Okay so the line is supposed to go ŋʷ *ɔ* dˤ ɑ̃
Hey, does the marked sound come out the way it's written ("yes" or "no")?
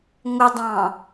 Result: no